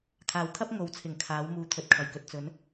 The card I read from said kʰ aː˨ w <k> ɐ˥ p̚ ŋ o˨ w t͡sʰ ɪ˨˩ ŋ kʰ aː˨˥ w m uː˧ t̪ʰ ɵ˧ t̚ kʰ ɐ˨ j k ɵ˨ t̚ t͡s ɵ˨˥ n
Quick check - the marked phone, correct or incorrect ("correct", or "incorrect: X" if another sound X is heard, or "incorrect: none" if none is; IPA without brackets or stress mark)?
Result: incorrect: kʰ